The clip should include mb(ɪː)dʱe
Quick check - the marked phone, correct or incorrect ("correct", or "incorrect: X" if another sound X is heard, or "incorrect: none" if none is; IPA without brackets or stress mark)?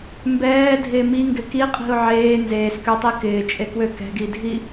incorrect: ɛː